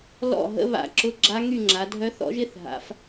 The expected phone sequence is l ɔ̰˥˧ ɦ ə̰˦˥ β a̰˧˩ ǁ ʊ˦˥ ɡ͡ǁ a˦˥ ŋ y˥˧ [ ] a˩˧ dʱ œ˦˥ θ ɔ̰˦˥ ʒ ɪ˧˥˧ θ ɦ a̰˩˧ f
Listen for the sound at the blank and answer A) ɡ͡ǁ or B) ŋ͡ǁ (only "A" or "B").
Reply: B